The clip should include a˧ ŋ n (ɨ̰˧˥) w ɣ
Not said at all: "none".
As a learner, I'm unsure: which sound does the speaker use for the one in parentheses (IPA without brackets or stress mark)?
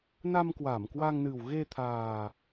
ɨ˨˩